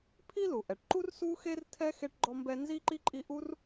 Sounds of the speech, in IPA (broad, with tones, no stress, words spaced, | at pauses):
pʰi˦lu˩ʔɛ˩ʈǃu˦r su˥xe˥r tʰɛ˥xe˦ʈɡ͡ǃɔ˦mbɛ˦ nzi˥ǃi˥ǃʼi˦ ʔu˥r